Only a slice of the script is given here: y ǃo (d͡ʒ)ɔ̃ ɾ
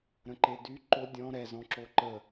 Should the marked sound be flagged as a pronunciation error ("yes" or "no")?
yes